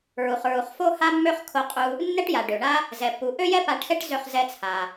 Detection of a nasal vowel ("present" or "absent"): absent